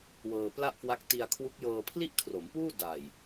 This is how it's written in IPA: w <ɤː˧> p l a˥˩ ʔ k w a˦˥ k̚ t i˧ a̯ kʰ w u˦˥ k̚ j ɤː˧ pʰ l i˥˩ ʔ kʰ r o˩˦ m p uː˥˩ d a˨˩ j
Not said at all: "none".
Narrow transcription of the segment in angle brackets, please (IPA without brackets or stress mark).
ɤː˧